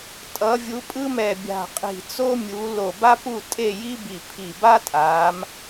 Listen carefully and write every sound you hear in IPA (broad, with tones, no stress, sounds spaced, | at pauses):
tʼ ʌ˨˦ vʲ u˨˦ pʼ ɯ˥ m ɛ˧˩ bʲ a̤˧˩ qʼ i̤˧˩ t͡s o˥ mʲ u˨˦ l o˧˩ b a˥ p u˥˨ tʼ e˥˨ j i˥ b i˧˩ pʰ i˧˩ b a˥ tʼ a˨˦ m